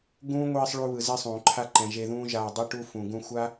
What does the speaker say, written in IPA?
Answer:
ɡ ũː˦ ŋʷ iː˧ sˤ ɭ u˧ β ɯ˨ z e˦ sˤ ũː˨ ǃʰ a˦ ǃ ɛ̃˨ ʒ e˧ ð ũː˦ ʒ aː˧ dˤ i˦ ʈ u˦ f ũ˨ ɡ ũ˧ xʷ a˦

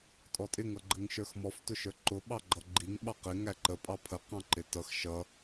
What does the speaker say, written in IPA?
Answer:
tʼ ɔ tʼ ɪ ŋ ʌ ɡ͡ǃ ə ŋ ʃ ə˞ x m ɔ f t ʊ ʃ ə˞ ǃ ʊ ɓ ɑ ɡ͡ǃ ʌ ɡ͡ǃ i ŋ ɓ ɑ q ɪ ŋ æ ǃ ə pʼ ɑ pʰ ə q ɑ̃ ǃ ɪ t ʌ x ʃ ʌ

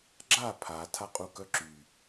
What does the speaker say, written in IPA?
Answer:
ɡ͡ǁ a pʰ a tʰ a qʼ u k œ ǁ y

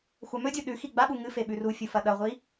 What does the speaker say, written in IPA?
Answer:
xʷ a m ɵ dʲ u ɗ ʉ x i ɡ͡b a ɓ u ŋ ɨ f e ɓ ʉ r u fʲ u f ɐ ɗ ɐ ʁʷ i

